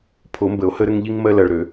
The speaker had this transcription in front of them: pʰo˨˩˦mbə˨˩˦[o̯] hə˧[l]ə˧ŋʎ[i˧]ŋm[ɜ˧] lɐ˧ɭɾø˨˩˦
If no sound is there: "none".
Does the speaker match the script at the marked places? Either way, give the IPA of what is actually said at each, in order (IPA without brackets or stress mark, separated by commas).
o̯, ɾ, i˧, ɜ˧